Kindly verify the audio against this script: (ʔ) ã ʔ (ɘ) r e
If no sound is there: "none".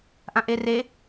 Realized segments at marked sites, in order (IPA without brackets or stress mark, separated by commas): ʔ, e